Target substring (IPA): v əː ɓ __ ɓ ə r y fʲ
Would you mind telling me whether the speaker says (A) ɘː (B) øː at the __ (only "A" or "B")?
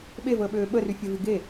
B